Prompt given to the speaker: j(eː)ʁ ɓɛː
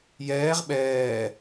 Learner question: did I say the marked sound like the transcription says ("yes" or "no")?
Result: no